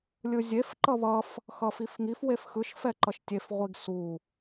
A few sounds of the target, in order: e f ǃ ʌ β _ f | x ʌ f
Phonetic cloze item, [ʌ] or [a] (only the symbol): ʌ